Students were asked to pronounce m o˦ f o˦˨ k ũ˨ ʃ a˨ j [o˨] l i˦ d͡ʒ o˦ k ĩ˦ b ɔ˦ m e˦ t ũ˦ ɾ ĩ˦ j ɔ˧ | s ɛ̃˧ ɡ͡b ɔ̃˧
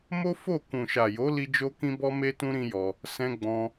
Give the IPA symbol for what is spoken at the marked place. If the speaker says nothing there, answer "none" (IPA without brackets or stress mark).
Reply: o˨˦